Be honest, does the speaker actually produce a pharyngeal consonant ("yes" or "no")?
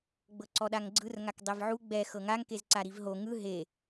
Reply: yes